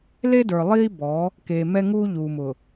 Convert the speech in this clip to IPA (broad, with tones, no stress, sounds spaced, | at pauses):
l e˦ d ə˞˨ lˠ iː˦ b ɔ˨˦ | k eː˨ m ɛ˦ ŋ uː˦ ʎ uː˨ m ʊ˨